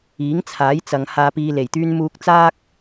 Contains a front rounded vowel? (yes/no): yes